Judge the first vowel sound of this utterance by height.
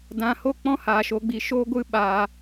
low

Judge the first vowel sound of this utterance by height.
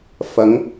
low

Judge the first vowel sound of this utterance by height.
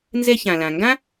mid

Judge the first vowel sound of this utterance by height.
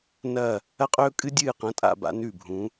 low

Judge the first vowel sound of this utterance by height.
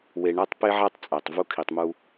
mid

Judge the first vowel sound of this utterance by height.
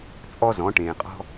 mid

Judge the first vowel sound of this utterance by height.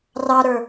low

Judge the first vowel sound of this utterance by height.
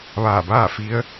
low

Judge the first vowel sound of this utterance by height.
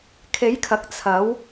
mid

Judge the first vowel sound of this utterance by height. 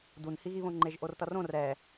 high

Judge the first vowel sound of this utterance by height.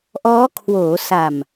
mid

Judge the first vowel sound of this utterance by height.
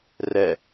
mid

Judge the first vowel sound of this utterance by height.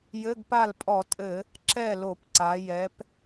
mid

